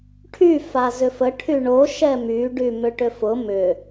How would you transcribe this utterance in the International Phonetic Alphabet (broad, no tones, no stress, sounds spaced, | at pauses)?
ʈʰ y f a z ʏ f ə ʈʰ y ɳ o ʃ ɛ m y ɖ y m ʏ ʈ ʏ f ʊ m ʏ